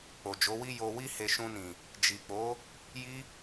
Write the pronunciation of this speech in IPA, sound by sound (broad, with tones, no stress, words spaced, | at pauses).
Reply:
k͡po˨d͡ʒo˨˦wi˦ jo˧ wi˦he˧ ʃũ˧nĩ˨ | d͡ʒi˨k͡po˨˦ | ji˦